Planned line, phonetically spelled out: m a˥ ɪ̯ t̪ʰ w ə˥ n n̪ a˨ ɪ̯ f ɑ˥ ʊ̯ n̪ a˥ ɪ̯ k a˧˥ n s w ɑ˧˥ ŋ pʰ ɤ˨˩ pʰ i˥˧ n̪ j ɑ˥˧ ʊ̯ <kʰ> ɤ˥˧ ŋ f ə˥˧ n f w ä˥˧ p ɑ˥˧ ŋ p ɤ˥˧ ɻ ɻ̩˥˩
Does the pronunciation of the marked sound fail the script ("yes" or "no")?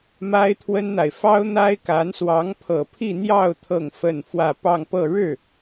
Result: yes